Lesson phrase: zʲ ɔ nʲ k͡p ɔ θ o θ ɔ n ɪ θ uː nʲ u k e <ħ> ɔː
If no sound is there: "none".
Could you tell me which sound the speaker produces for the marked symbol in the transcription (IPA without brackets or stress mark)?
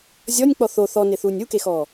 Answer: x